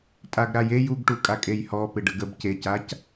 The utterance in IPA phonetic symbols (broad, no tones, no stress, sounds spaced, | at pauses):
tʼ a ɡ ɾ a j e j u ɡ ʈ u kʼ a kʼ e j h ɔ p ɪ ɖ ə ɡ ə b c e c a c